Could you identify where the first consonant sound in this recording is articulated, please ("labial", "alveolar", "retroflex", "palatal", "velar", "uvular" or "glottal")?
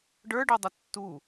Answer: retroflex